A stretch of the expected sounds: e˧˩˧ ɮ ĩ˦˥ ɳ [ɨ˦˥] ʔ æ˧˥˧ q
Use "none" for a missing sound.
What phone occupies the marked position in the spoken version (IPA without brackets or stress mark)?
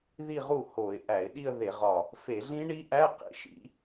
i˦˥